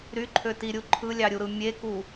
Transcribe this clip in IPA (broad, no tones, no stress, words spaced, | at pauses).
ɾyǃʰøtiɾʲu ǃʰɯlʲɑɾʲuɾɯ mʲeku